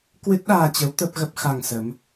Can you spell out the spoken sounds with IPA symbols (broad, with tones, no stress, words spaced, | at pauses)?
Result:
kwɨ˦˥t̚ɗaː˧t͡ɕə˨˦w t̪ə˦˥p̚ɣə˦˥p̚xa˧ŋsə˨˦m